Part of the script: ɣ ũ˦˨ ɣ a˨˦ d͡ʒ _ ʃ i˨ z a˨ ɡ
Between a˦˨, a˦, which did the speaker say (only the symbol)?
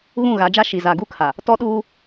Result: a˦